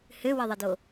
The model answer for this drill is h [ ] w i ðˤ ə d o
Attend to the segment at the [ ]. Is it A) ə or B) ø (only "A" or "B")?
B